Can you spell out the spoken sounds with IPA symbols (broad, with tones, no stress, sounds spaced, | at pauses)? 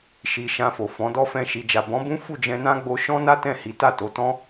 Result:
ʃ i˨ ʃ ã˧ f o˨ f ɔ̃˨˦ d ɔ˦ f ɛ̃˦˨ ʃ i˨ d͡ʒ a˨ b ɔ̃˨˦ b ũ˦ f u˦˨ d͡ʒ ɛ̃˧ n ã˦ ɡ͡b o˧ ʃ ɔ̃˦ n a˦ t ɛ̃˦˨ h i˨˦ t a˦˨ t o˨˦ t ɔ̃˦